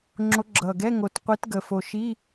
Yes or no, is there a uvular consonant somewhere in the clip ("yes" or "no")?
yes